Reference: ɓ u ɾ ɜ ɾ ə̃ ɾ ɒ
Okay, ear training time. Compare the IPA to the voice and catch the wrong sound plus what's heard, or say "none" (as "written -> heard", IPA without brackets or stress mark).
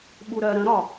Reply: none